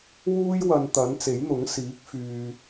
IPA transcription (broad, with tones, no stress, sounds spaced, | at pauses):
w uː˥ j w ɐ˨ n t̪ ɐ˨˥ n t͡s e˨˥ j n̪ ʊ˨˥ ŋ s iː˨˥ k̚ f yː˨